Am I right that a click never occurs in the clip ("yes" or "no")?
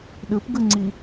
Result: no